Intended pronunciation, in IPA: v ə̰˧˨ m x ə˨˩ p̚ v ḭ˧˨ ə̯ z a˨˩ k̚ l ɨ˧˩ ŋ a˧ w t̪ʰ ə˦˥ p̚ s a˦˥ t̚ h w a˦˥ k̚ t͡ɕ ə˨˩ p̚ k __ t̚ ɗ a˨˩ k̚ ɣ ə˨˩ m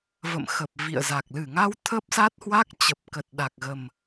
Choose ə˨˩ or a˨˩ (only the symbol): ə˨˩